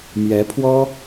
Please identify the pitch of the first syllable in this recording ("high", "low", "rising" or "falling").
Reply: rising